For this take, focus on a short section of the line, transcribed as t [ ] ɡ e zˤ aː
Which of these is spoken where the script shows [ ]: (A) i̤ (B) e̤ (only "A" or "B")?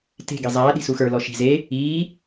B